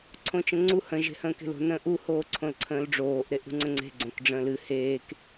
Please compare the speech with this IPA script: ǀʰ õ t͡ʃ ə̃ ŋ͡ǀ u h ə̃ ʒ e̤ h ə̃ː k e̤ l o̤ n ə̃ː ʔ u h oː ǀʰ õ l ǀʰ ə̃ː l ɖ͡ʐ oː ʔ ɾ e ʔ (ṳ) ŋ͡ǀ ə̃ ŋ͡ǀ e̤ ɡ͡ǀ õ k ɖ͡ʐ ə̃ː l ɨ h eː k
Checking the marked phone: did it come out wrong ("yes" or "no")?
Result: no